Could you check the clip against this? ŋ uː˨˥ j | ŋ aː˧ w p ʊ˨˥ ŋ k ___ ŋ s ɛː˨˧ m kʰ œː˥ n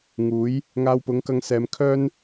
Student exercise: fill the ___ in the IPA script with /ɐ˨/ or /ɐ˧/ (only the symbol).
ɐ˧